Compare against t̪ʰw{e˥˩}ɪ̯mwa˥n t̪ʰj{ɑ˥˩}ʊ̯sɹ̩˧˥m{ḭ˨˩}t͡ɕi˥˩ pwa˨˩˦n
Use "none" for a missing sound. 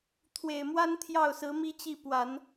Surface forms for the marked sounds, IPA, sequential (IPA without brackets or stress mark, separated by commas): e˨˩, ɑ˥˩, i˥